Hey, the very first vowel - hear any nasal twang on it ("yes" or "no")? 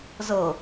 no